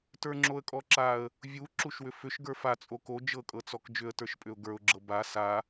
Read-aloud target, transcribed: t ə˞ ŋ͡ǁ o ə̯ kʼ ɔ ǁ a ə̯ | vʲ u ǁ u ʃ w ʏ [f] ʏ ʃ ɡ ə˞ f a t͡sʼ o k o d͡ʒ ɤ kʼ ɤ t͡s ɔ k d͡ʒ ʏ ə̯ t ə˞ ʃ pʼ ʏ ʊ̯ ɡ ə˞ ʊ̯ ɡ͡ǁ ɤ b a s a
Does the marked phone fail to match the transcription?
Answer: no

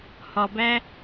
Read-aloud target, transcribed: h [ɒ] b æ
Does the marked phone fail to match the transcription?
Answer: no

